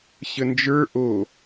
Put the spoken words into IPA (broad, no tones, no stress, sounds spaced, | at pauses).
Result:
ɕ ə n d͡ʒ ə˞ ʔ o